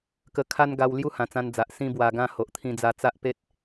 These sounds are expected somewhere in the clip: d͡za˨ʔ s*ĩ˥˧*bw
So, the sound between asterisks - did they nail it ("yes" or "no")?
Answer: yes